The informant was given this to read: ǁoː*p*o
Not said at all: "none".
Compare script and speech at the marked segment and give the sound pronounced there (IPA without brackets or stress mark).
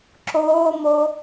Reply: m